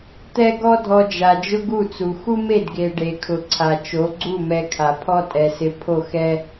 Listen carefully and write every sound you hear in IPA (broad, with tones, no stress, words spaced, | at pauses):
t̪ɛ˦ ɡɔ˦dʱɔ˧d͡ʒa˨ d͡ʒʊ˦ɡu˦˨t͡su˨ xu˦me˦˨dɡe˨ ɖe˨kʰʊ˨ǀʰa˨ t͡ʃo˨˦ɡ͡ǀu˦˨mɛ˧kʰa˨ pʰɔ˦tʼɛ˨sɪ˧ pʰo˦˨xɛ˦